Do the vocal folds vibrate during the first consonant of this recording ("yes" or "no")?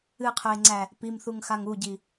no